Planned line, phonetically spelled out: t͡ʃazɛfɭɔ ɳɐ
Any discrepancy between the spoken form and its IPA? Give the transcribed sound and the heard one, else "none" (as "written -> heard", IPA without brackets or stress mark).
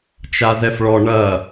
none